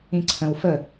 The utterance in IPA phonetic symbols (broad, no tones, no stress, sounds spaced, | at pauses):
ĩ ǀʰ ə̃ w f ə